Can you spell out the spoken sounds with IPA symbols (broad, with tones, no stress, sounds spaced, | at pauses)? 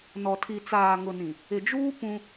n ɔ˨ tʰ i˨ t͡s aː˨ ŋ ʊ˨ n ĩ˨ | ɪ˨ d͡ʒ uː˦ p ũ˦